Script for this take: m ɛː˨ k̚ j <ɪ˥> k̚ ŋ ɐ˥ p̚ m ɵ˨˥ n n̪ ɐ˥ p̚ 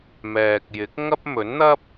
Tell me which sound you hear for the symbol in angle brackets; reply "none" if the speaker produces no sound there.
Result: ɪ˨˥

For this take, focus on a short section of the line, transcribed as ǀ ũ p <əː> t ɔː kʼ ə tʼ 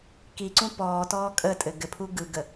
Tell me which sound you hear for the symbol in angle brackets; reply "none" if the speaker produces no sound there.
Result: ɔː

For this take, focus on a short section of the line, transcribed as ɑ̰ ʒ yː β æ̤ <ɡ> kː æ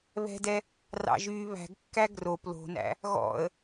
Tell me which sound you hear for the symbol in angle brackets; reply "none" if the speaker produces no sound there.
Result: ɡ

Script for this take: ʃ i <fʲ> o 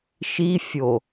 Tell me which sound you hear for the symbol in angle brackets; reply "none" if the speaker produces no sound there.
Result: fʲ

